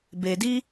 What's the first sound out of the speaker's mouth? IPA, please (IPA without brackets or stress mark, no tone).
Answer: b